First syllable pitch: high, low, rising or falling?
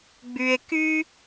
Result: low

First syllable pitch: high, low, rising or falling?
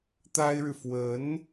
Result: high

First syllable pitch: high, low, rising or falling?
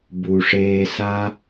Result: low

